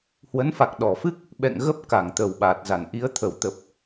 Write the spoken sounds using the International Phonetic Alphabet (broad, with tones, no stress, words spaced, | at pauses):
hwə˨˦nfa˨˩k̚ɗɔ˧˩fɨ˦˥k̚ | ɓɛ̰˧˨ŋ ɣə˦˥p̚ ka˧˩ŋt̪ə˨˩wɓaː˨˩t̚za˧˩n ʔi˨˦ə̯t̪ʰə˧˩w t̪ə˨˩p̚